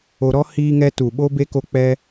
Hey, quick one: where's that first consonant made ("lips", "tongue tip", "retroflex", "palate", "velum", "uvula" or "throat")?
tongue tip